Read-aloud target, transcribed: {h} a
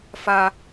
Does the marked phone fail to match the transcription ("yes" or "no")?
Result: yes